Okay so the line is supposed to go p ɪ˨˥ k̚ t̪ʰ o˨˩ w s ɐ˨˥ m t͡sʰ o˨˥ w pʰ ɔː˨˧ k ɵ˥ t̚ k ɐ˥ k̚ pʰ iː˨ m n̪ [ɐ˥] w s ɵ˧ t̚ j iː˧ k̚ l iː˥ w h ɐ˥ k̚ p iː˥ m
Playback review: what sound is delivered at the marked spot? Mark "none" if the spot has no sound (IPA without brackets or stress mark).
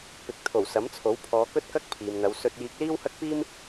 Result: ɐ˨˧